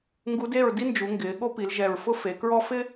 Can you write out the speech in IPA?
ŋ ɡ u˧˥ d e˥˨ ɹ d i˥ n d͡ʒ u˩˧ ŋ ɡ ɪː˩˧ ɠ o˥ p i˩˧ l ʒ ɛ˨˩ ɹ f ʊ˥ f e˩˧ k ɹ ɔ˥ f ɪ˥

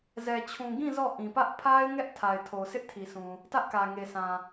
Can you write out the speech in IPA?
z ɛ˨ t͡ɕʰ ũ˨ ɡ ĩ˦˨ z ɔ˦˨ ʔ ĩ˨ p ä˦ ʔ pʰ a˦ ɪ̯ ŋ ɛ˦ ʔ tʰ a˨ ɪ̯ tʰ o˨ sʰ ɪ˦ ʔ tʰ i˨ s ũ˨ | t ä˦ ʔ k ä˨ ŋ e˨ sʰ ã˨

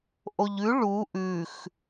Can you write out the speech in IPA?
ʔ o ʎ ʉ ɭ u ʔ ʉ x

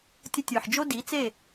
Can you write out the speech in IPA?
tʲ ə˧ tʲ ə˞˨ ħ d͡ʒ o˦ d i˨˦ t͡s e˦˨

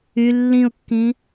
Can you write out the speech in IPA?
y lː ĩ ʊ̯ kː ĩ

